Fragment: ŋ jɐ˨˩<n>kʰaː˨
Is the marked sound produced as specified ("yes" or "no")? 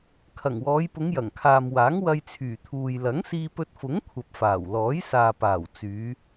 no